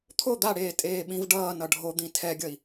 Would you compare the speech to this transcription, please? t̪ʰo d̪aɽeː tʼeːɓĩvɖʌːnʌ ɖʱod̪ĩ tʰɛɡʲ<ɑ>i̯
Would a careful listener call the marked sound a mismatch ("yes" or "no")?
yes